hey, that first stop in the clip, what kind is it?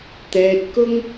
plain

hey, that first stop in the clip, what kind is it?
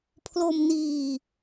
aspirated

